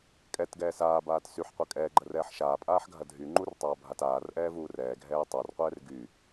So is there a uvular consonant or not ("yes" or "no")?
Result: yes